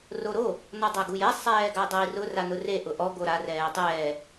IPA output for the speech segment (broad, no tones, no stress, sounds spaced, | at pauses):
r o ɾ o | n ɔ dˤ a ɡ u j ɛ sˤ ɛː ɡ a dˤ o i̯ r ʊ r a n ʊ r e ʔ ʊ ʔ ɔ ɡ o ɾ a r ɛː tˤ ɛː